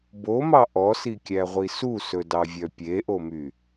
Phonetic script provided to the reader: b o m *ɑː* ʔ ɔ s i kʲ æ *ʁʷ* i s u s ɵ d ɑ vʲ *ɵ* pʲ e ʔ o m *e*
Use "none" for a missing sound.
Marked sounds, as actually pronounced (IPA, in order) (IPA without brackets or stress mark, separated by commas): ɑ, ʁʷ, œ, y